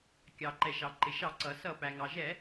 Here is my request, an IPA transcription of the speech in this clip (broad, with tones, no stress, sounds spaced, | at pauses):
kʲ ɑ˩ ǃ ɛ˩ ʃ ɑ˩ ǃ ɪ˩ ʃ ɑ˧˩˧ ǀ ʌ˩ s ʌ˧˩˧ p æ˩ ŋ ɑ˩ ʒ ɛ˧˩˧